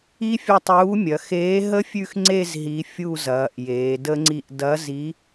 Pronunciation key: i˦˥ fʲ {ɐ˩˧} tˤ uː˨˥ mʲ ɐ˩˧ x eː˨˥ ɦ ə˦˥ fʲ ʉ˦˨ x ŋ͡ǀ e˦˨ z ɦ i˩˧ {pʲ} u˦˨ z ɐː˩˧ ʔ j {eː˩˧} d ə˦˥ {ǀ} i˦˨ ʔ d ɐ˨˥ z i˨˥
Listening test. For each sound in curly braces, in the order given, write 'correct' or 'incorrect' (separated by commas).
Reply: incorrect, incorrect, correct, incorrect